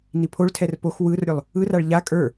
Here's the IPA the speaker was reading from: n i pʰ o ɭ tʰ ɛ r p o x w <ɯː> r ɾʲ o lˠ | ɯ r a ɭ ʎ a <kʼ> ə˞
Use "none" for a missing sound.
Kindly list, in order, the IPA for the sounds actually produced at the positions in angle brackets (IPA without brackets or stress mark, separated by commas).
ɯ, kʼ